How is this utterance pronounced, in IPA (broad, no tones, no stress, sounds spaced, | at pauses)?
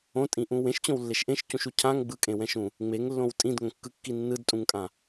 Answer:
õ tʼ ĩ ʔ ũ w ẽ ʃ t͡ɕ õ w lː e ʃ ʔ ẽ ʃ c ũ ʃ u cʰ ã ŋ ɡ͡b ɯ kʼ ẽ w ɛ̃ ʃ ũ | ŋ͡m e ŋ lː õ w tʼ ĩ d ŋ õ kː ɯ kː i nː ɯ d tʼ ũ ŋ kʼ ã